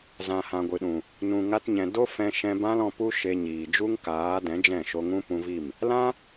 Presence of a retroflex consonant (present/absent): absent